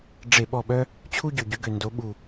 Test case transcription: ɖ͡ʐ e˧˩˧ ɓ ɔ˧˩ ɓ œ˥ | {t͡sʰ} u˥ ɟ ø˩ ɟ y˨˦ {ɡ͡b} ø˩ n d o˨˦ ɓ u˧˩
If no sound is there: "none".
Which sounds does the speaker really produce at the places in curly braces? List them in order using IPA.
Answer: t͡ɕʰ, ɡ

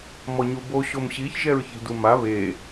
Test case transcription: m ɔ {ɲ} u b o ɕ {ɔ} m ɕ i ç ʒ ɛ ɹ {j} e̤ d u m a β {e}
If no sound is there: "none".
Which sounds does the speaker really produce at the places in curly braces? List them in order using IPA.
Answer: ɲ, o, ç, e

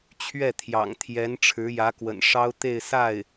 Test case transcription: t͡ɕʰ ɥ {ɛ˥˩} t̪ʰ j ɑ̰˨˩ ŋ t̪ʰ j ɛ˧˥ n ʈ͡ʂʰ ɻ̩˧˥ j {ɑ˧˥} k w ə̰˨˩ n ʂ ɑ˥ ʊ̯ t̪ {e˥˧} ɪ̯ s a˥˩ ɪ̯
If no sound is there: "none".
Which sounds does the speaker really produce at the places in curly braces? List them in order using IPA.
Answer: ɛ˥˩, ä˧˥, e˥˧

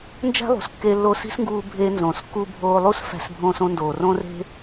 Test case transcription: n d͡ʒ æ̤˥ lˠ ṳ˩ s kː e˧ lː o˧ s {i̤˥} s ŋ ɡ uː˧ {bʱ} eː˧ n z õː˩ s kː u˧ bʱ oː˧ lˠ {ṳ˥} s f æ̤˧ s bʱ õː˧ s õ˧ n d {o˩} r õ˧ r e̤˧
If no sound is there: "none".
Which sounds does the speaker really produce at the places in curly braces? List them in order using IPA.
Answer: i̤˥, bʱ, u˥, oː˩

